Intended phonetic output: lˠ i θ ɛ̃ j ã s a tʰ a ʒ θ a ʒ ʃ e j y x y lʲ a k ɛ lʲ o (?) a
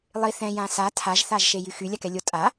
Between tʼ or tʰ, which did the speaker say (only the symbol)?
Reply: tʼ